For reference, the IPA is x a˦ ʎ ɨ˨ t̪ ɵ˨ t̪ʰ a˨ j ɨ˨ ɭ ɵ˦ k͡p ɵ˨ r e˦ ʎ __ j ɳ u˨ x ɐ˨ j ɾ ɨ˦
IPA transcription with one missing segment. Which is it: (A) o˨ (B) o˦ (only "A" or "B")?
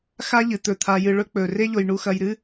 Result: A